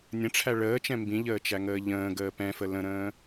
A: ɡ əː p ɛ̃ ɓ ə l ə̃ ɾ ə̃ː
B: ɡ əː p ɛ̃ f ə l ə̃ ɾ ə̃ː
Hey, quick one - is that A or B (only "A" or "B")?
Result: B